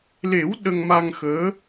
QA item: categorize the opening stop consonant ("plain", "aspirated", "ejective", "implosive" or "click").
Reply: implosive